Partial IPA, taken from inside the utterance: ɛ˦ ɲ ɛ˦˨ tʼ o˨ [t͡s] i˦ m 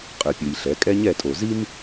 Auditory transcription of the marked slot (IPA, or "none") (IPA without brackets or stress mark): z